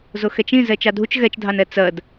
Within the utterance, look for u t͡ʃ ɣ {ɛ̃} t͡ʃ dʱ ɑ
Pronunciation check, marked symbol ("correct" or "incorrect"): incorrect